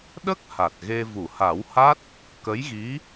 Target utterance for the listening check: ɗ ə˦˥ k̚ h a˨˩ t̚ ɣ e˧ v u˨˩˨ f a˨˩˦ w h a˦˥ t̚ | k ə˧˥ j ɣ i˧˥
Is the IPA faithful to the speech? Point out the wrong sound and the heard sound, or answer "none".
f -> h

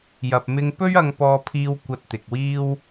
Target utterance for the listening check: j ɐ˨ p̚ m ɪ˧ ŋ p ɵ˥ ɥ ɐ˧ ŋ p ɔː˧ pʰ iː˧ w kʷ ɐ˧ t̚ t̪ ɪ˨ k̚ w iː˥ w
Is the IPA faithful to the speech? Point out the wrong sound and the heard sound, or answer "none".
none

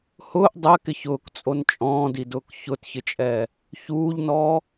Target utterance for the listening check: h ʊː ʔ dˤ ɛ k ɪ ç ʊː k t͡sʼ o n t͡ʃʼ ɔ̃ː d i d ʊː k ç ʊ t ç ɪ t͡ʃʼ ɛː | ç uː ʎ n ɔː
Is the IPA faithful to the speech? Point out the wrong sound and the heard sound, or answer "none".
none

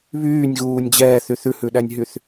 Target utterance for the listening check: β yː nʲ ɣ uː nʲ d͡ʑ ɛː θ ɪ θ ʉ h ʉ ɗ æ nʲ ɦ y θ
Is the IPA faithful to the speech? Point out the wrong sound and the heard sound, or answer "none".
ɪ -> y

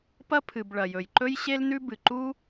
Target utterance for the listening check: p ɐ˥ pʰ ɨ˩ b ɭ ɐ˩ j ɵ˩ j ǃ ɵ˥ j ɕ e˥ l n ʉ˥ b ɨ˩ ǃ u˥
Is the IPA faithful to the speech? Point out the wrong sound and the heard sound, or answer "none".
none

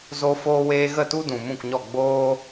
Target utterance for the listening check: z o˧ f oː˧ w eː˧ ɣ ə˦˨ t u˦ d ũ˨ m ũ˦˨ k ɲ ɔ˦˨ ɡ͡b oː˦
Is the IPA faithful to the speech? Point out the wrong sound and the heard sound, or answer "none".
none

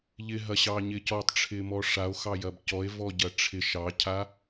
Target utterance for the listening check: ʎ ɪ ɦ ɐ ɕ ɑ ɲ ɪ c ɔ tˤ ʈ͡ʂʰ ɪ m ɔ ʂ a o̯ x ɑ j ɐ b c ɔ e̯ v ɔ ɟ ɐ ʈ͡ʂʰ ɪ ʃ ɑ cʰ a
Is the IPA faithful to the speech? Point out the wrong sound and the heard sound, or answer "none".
none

